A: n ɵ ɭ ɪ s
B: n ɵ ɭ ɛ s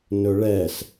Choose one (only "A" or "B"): B